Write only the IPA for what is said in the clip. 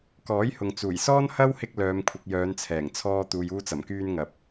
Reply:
k ɔː˨˥ j h ʊ˨ ŋ t͡s uː˨˩ j s ɔː˥ n h ɐ˥ w h ɪ˧ k̚ l œː˨ m kʷʰ ɪ˨ k̚ j œː˨˧ n t͡sʰ ɛː˨˩ ŋ t͡sʰ ɔː˧ t̪ uː˨ j uː˧ t͡s ɐ˨˩ m k yː˧ n ŋ ɐ˨ p̚

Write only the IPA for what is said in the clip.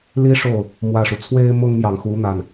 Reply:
l i˥ ʂ o˥˩ ʊ̯ | m w ä˥˩ ʂ u˩ t͡sʰ w e˥ ɪ̯ m ʊ˥ ŋ m j ɑ˨ ŋ x u˧˥ n̪ a˥˩ n

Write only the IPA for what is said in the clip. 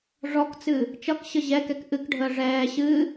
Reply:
ʐ ɔ k t͡s ɨ | t͡ʃ ʌ k ɕ ə ʑ ɛ k ɛ k ʔ ɨ k ɖʱ əː ʐ ɛː ɕ ɨ

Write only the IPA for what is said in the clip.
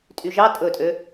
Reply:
tʼ y ʒ ɑ tʼ ɵ tʼ ø

